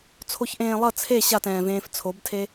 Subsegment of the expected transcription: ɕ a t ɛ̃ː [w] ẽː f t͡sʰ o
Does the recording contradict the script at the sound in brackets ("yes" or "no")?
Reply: yes